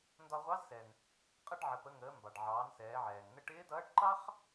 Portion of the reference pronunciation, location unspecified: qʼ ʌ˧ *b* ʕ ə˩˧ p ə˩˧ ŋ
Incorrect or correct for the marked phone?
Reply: incorrect: ɖ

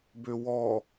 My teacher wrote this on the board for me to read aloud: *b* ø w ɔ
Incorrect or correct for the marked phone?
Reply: correct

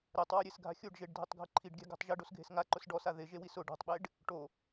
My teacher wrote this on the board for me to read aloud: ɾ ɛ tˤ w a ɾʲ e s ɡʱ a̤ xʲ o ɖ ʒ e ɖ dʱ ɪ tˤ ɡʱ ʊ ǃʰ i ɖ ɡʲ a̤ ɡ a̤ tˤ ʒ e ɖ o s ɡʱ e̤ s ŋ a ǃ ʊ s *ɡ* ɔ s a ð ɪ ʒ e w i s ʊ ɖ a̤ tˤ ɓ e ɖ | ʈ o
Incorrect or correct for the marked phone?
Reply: incorrect: ɖ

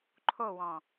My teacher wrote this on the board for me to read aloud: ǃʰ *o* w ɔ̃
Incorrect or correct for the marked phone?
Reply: correct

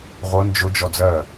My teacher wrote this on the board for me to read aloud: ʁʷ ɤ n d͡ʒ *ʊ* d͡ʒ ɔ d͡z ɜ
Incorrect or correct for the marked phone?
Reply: correct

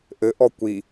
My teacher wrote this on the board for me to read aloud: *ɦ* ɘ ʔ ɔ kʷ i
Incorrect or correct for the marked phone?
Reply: incorrect: ʔ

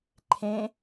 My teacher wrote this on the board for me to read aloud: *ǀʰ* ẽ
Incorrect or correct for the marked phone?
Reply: incorrect: ǃʰ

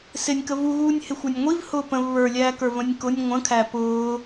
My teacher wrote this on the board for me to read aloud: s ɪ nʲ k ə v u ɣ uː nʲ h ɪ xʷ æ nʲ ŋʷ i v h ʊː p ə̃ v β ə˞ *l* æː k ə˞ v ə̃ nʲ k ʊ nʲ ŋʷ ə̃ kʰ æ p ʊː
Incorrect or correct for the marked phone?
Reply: incorrect: lʲ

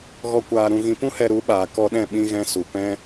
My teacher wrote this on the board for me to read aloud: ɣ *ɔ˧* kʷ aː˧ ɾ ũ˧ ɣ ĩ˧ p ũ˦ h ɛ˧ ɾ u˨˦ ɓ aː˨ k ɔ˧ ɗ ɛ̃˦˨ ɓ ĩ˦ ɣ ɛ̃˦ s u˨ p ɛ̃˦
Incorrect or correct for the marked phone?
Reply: correct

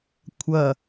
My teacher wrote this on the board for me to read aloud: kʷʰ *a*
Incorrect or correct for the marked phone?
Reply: incorrect: ɐ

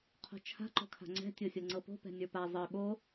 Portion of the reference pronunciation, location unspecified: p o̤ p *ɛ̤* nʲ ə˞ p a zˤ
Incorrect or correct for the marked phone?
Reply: correct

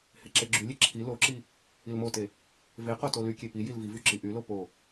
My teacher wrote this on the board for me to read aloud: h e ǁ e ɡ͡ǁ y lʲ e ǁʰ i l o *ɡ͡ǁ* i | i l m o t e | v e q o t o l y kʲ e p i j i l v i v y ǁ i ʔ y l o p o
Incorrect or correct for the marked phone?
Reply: incorrect: ǁ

